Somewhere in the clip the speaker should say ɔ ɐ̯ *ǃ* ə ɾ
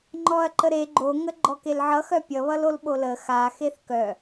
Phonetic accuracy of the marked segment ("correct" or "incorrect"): correct